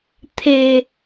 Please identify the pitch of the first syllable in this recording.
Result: low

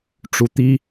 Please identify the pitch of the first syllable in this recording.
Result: rising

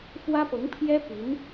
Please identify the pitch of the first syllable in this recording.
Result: high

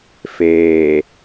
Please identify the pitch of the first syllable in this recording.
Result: low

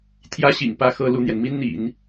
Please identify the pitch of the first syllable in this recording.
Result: high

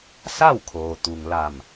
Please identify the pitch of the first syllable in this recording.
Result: falling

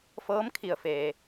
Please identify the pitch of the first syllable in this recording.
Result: rising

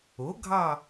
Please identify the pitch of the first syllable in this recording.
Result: rising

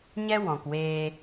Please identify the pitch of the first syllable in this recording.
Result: high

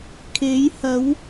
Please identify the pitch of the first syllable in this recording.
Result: rising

